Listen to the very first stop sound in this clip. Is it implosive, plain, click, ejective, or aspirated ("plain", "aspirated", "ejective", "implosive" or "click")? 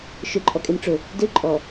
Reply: click